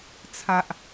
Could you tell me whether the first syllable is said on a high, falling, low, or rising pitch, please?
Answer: low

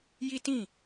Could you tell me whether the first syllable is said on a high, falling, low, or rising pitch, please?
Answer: high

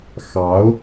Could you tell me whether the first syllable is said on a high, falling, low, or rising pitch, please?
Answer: rising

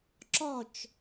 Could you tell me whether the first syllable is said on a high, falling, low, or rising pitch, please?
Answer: falling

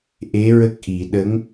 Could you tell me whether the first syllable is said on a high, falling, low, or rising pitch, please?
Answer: rising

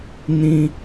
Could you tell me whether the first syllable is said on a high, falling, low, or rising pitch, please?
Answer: high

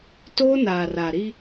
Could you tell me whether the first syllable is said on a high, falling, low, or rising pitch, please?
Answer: high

